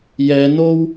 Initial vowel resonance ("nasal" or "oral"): oral